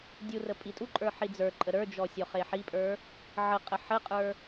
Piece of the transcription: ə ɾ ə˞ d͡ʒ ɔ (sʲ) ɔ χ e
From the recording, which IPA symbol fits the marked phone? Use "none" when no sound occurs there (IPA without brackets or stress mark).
sʲ